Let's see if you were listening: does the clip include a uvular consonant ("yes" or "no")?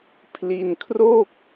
no